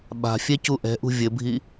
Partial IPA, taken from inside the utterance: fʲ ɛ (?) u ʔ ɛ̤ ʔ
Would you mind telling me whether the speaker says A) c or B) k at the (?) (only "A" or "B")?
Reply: A